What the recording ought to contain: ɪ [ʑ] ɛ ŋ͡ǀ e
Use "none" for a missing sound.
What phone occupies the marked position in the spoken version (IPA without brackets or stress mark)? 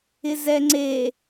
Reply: z